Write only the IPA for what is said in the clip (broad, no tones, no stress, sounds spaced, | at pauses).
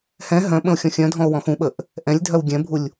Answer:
h ɛ̃ ɦ œ̃ ɓ ə̃ o̯ xʲ ɔ̃ xʲ œ̃ dʱ ɔ̃ o̯ w ɔ̃ x ũ ɓ ə ʔ | ʔ ɛ̃ lʲ dʱ œ w ɡʲ ɛ̃ bʱ u lʲ